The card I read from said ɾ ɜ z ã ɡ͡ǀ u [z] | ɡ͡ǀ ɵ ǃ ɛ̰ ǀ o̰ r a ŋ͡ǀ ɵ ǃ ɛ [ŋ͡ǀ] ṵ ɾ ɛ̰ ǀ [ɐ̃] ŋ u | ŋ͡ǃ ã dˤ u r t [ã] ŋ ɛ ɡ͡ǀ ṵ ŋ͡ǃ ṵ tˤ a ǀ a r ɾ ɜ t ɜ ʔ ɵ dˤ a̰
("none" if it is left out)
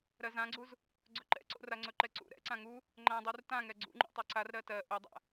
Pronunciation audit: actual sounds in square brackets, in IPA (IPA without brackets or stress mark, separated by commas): z, ǀ, ã, ã